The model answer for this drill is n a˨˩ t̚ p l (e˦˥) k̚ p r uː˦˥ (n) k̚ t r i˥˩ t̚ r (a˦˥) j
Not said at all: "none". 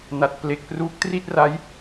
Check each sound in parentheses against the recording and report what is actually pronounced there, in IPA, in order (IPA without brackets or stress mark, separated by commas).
e˨˩, none, a˦˥